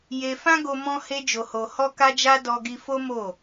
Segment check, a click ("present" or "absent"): absent